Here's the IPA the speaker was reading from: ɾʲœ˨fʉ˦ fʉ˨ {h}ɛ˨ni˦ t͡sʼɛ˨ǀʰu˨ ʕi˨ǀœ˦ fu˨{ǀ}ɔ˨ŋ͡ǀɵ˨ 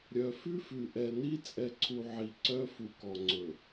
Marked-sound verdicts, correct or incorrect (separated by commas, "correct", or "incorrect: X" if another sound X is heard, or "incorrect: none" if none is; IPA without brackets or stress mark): incorrect: ʔ, incorrect: k